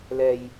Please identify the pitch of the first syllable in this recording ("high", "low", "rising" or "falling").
low